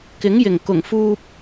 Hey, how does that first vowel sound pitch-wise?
rising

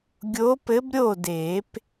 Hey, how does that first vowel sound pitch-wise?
rising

